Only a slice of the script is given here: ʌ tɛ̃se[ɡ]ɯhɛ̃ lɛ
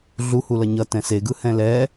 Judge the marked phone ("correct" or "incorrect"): correct